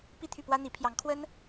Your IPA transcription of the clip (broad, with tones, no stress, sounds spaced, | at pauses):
p i˥˧ t̪ʰ y˥˩ p w ä˥ n̪ i˧˥ pʰ j ɑ˧˥ ŋ kʰ w ə˥ n